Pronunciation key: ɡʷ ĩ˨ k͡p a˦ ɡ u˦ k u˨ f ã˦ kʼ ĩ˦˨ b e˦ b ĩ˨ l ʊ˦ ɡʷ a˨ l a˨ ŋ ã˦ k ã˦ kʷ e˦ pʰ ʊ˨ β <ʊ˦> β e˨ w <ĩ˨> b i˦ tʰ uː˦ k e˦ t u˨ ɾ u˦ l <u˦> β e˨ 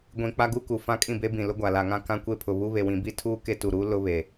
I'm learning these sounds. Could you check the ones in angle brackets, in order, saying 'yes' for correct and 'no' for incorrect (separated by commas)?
no, yes, no